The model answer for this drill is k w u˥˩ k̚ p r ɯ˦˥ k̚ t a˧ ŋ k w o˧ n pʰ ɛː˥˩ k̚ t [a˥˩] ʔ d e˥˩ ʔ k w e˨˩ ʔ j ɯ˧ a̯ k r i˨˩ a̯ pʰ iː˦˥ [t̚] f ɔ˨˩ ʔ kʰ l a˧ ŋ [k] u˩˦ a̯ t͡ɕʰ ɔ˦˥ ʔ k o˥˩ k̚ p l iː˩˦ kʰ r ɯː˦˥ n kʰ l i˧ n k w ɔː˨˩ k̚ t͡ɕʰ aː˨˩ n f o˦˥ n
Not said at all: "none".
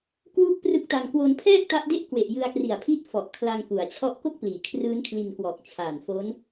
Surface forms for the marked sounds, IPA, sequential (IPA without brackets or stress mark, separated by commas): a˦˥, t̚, k